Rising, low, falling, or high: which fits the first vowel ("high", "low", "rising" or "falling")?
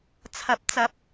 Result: rising